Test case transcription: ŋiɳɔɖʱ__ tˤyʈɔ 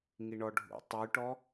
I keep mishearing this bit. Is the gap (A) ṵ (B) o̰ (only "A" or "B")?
A